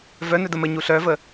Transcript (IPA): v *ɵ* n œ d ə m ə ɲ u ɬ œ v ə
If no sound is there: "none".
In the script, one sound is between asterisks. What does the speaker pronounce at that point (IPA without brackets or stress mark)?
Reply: œ